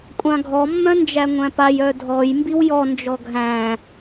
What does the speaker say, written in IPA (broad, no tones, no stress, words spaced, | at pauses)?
kʷʼãɡʱɔ mːœ̃nd͡ʒæŋʷæ̃paj œdʱɔj mbiwjɔ nd͡ʒɔɡʱæ̃